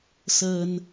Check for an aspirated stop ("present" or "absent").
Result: absent